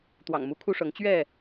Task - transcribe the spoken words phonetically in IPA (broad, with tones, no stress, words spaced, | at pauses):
t̪wɑ̰˨˩ŋmu˨˦kʰu˦ʂɤ˨˦ŋ t͡ɕɥɛ˥˨